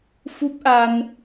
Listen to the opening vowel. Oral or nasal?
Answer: oral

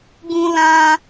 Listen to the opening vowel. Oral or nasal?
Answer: nasal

